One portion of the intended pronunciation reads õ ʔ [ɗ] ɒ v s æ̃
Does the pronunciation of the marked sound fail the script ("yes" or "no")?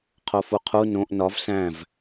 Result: yes